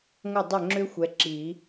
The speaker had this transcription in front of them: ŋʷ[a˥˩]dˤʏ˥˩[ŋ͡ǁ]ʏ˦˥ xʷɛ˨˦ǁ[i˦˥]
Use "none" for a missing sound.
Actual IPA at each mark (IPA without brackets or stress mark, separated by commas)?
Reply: ə˥˩, ŋ͡ǁ, i˨˩˦